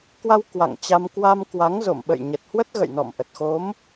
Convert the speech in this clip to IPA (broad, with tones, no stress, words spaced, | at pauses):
kwa˧w kwa̰˧˨ŋt͡ɕa˧m kwa˧mkwa˨˦ŋzo̰˧˨m ɓə̰˧˨jɲə˨˩t̚hwə˦˥t̚ɣə̰˧˨j nɔ̰˧˨mʔə˨˩t̚ xo˨˦m